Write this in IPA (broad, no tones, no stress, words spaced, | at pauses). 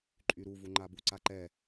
ǃʼyɾuvu ŋ͡ǃabuǀaǃɛ